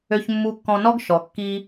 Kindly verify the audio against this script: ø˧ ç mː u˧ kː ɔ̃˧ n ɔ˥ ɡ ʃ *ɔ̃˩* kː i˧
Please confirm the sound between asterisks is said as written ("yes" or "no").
no